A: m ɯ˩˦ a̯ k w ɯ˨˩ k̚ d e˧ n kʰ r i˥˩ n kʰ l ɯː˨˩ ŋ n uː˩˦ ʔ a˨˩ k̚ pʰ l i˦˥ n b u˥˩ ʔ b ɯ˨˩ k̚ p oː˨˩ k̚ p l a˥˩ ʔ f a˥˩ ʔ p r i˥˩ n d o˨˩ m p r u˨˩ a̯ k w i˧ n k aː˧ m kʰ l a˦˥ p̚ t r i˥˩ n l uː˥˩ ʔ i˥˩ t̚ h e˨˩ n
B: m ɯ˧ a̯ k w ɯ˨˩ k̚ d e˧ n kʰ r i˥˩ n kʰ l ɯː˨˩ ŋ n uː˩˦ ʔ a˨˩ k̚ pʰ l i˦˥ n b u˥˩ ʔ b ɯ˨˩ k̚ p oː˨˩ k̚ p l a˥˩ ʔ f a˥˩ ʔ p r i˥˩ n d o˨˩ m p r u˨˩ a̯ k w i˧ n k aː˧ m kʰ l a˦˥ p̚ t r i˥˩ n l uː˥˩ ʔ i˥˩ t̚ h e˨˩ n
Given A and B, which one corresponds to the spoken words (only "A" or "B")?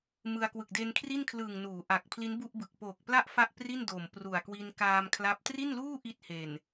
B